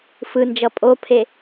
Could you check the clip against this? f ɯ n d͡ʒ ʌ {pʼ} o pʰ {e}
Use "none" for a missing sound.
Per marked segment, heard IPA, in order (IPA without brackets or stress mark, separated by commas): pʼ, e